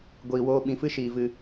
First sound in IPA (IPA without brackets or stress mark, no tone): ɡʷ